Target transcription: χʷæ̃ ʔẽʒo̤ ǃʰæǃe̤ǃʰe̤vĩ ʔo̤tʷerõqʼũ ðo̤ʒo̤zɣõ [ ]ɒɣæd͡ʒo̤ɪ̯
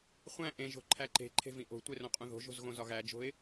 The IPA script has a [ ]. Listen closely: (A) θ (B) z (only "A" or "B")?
B